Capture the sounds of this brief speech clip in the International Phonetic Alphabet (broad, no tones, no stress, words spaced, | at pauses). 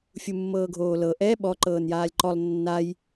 fʲumːɤːɡʱoːlɤ ʔɛ ɓɔ ǃɤːnjaːlʲǃɔlˠ nːaj